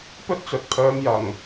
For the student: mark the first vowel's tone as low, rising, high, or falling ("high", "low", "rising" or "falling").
high